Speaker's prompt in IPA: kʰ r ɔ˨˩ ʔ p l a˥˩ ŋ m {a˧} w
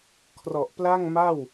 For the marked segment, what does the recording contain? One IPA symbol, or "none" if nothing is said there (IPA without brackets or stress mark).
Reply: a˥˩